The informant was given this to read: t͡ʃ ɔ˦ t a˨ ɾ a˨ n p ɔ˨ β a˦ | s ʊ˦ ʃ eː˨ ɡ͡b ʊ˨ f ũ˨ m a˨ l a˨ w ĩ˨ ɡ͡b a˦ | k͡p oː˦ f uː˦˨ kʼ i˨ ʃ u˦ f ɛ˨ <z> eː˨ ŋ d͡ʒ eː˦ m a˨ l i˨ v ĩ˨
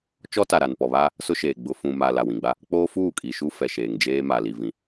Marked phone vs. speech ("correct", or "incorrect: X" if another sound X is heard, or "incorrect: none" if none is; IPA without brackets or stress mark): incorrect: ʃ